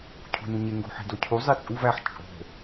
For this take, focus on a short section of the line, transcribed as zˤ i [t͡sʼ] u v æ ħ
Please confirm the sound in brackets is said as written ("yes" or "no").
yes